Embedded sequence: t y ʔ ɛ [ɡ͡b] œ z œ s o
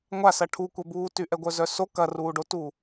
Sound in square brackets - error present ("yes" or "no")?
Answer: yes